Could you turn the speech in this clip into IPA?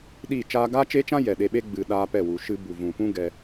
ɗiː˦˨t͡ʃaː˦ ɡaː˦t͡ʃeː˦t͡ʃã˦ jɛ˨ɗe˧ɓe˦ ɡ͡bɨ˨ɗaː˧ pɛ˦˨ wu˨ʃɨ˧ bu˨vũ˨pũ˦ ɡɛ˧

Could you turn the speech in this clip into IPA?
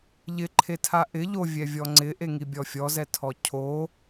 ʎɪǃʰetʰa ʔɪ ʎovʲɛvʲɔ ŋ͡ǀɪʔeŋibʲɔ fʲɔzɛtʰɔ cʰo

